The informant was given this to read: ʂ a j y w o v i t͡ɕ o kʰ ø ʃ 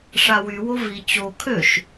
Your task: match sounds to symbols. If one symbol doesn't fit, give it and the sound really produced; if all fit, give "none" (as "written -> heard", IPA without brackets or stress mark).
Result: j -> w